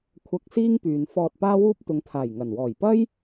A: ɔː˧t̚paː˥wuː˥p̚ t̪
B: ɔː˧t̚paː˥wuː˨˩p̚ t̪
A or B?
A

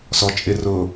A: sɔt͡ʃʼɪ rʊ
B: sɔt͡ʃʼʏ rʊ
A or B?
A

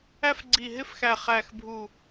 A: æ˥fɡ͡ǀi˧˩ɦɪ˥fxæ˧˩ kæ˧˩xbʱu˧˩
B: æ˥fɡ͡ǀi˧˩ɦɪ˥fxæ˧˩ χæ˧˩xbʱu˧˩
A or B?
B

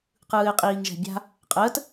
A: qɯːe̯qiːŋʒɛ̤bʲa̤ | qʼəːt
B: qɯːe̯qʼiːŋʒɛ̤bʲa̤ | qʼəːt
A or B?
B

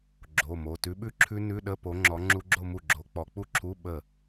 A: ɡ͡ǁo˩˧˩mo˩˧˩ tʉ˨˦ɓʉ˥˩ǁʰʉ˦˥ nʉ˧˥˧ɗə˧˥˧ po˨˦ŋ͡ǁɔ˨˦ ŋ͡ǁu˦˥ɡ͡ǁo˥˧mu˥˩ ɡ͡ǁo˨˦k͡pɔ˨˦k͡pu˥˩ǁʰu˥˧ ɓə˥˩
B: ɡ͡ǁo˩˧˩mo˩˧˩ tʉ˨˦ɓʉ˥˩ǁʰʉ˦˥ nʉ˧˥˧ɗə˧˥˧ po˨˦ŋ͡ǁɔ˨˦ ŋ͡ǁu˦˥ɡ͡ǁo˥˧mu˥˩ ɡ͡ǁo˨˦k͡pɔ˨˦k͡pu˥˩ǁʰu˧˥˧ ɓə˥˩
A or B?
B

